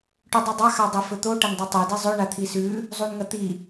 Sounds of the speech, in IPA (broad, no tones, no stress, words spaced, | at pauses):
ʈʉdˤudˤa xadˤifɵt̪o ʈɐndˤitˤɵ dizˤɵ ɳat̪ʰisʉ | zˤunŋɐt̪i